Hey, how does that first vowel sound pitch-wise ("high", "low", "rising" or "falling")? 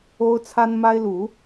high